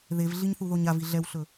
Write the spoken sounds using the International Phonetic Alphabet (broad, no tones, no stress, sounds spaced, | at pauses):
ð e v ɮ i ɲ θ u ð o ɲ a v i ɮ ɛ w ɬ ɵ